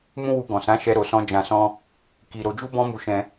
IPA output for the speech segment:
m ũ˦ w u˧ ɡ ɔ̃˨ s ã˨˦ ʃ ɛ˧ ɾ o˨ s ɔ̃˧ d͡ʒ ã˧ s ɔ̃˦ | k i˨ ɾ o˧ d͡ʒ u˦ b ɔ̃˦ m u˧ ʃ ɛ̃˧

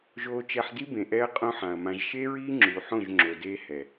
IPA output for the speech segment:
ʒ oː˧ t͡ʃ ɛ˧ ħ d i˦ b ẽ˨ ʔ ɛ˦ ɐ̯ qʼ õ˦ ħ ã˨ ɐ̯ m ã˧ ʒ ʃ e˦ ɹ iː˦ ŋ͡ǁ u˨ ħ õ˦˨ ʒ ŋ͡ǁ o˨ d eː˦ h ɛ˨

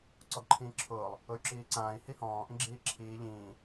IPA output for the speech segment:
ǀ ɔ ɡ ǃʰ ĩː ǁʰ ʊː lˠ | ʊ y̯ ǁ iː ǀ ãː i̯ h i h ɔ̃ː ʔ ĩ ɡ͡ǁ iː ǁʰ iː ʎ ĩː

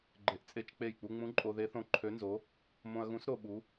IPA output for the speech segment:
ɡ͡ǃ e˧ ʔ t͡sʼ e˥˨ t͡ʃ k͡p e˥˨ j k͡p u˧ ŋ͡m ũ˧˥ ǃʼ o˧ ð e˧˥ θ õ˧˥ ǃʰ ø˧˥ n z o˧˥ | m õ˧ ɐ̯ ɣ ũ˧˥ s ɾ o˧ ɓ u˧˥

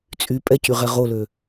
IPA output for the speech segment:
t͡sʼ y pʼ ɛ c y ʁ ɛ ʁ o l ø

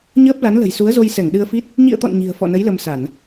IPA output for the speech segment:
ɲ əː˦˥ p̚ l a˨˦ n l ə̤˨˩ j s u˨˦ ə̯ z o˧ j s ɛ˧˩ ŋ ɗ ɨ˧ ə̯ f i˦˥ t̚ | ɲ ḭ˧˨ ə̯ t̪ ɔ̰˧˨ n ɲ i̤˨˩ ə̯ f ɔ̰˧˨ n ə˨˦ j l ə˧ m s a˧˩˨ n

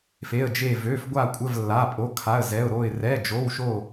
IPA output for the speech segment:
f e˧˥˧ ə̯ d͡ʒ e˥˧ v ø˧˥˧ f ɡʷ a˥˧ kʷʼ ə˧˥˧ v lː a˧˥˧ pʼ o˧˥˧ kʰ a˧˥˧ ə̯ z ɛ˧˥˧ ʊ̯ ɾ o˥˧ ɪ̯ r ɛ˧˥˧ d͡ʒ o˧˥˧ w ʃ o˥˧

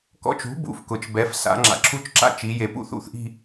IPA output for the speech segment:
k ɔ̰˦˨ t͡ʃ ṳ˨˥ b ṵ˩˧ f k ʊ˩˧ t͡ʃ b ɛ˨˥ f s a̰˩˧ ŋ͡ǁ a̰˩ ǁʰ u˦˨ t͡ʃ ǁ a̰˦˨ t͡ʃ i˩˧ j e˩ p ṵ˦˨ θ ṵ˦˨ θ ʔ i̤˦˨

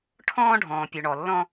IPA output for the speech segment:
ʈʰ ɔ̃ː˦ ɖʱ ɔ̃ː˨ pʲ o˨ ɳ ɔ˨ lː ɔ̃˦

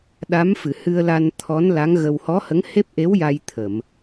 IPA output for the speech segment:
ɗ a˧˥ m f ɨ˨˩˨ h ɨ˧ ə̯ l a˧ n t̪ʰ ɔ˧˥ n l a˧˥ ŋ ɣ ə˧ w h ɔ˧˥ h ə˧˥ ŋ h e˦˥ p̚ ʔ e˧˥ w j a˧ j t̪ʰ ə˨˩˨ m

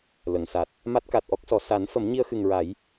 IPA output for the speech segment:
l ə˨˩˨ ŋ s a˨˩ t̚ | m a˦˥ t̚ k a˨˩ t̚ ʔ ɔ˦˥ k̚ s ɔ˨˩ s a˨˩˦ n f ə˨˩˦ m ɲ i˧ ə̯ x ɨ˨˩ ŋ ɹ a˨˩˦ j

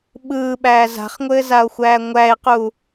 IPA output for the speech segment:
ɓ ɯː ɓ æː z a̤ χ ŋʷ ɘː z a o̯ xʷ æː ŋʷ æ e̯ q u

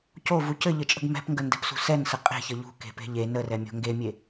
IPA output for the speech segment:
c o v u c ɘ ʎ ɘ t͡ʃʼ ə̤ ɡ m ɛ̤ p ŋ ɡ ə n d ɛ̤ p s ṳ s ɛ n s ə qʼ e̤ ç ə ʎ ṳ k e̤ p e̤ ʎ e n ə r ɛ mʲ o̤ ŋ ɡ e mʲ e

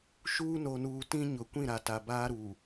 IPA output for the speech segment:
ʃ uː˦ n o˨ n uː˨ t ĩ˦ ɲ ʊ˨ kʷ ĩ˦˨ ɾ a˨ t a˨ b aː˦ ɾ uː˨

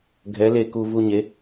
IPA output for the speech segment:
ɡʱ ɛ˨˥ l e˧ k u˧ v u˧ ɲ e˨˥

